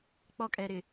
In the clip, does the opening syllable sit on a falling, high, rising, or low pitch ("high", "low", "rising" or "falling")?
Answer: high